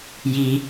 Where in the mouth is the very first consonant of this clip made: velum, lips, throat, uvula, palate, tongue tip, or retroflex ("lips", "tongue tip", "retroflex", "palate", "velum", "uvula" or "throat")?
palate